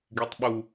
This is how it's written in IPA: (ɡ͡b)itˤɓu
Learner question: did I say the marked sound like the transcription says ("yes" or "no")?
no